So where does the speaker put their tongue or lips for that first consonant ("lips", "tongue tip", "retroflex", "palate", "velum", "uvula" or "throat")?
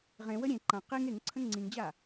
uvula